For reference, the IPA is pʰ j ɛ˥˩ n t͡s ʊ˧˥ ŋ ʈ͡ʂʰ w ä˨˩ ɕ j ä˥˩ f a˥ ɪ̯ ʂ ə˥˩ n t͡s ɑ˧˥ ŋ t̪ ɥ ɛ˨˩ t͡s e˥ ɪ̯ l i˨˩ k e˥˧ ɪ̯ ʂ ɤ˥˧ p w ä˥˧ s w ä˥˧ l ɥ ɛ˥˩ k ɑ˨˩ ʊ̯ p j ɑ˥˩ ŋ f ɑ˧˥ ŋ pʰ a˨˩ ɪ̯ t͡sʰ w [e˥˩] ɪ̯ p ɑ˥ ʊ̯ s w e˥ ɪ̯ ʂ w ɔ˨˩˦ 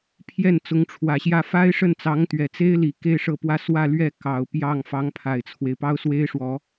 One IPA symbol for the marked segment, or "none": e˦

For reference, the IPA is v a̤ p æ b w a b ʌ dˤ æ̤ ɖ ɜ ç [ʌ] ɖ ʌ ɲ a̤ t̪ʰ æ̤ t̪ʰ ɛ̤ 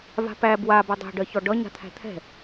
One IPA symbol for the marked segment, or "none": ɔ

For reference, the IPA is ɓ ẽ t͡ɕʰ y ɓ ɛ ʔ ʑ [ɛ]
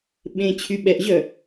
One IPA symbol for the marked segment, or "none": œ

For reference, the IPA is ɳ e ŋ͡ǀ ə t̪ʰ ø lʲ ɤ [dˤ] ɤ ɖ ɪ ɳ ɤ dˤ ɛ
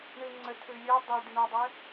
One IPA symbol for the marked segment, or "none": dˤ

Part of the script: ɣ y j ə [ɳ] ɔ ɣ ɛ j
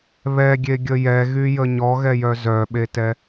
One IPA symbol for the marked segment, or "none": ɲ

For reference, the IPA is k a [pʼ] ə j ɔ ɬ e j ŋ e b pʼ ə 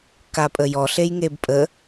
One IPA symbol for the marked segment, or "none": pʼ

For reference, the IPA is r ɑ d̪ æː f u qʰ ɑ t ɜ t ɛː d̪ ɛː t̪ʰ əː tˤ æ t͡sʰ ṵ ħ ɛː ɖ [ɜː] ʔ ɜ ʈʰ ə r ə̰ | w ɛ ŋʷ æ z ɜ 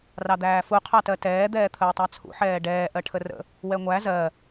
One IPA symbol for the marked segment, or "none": ɛː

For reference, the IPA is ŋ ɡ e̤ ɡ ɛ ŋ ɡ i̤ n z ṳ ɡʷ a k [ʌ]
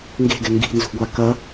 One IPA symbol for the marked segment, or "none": ʌ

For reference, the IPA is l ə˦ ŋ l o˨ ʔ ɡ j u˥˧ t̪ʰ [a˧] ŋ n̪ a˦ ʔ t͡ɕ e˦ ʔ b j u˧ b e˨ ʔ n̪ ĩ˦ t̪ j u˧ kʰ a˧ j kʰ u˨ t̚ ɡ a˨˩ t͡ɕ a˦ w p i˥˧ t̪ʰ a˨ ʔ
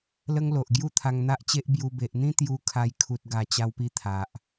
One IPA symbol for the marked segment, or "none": a˧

